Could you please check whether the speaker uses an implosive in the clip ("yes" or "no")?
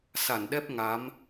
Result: yes